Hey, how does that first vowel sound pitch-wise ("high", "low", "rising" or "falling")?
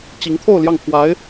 rising